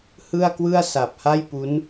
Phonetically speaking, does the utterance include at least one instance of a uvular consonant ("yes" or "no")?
no